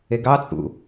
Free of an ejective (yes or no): no